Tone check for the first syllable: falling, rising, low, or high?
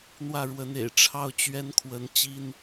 falling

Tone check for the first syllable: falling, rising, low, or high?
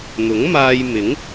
rising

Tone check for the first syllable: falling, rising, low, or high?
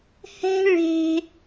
high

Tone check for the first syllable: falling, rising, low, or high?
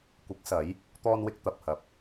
rising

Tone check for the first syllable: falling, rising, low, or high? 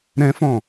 high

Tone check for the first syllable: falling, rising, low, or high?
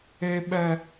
high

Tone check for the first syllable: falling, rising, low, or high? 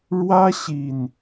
high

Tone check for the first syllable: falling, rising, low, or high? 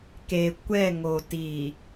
low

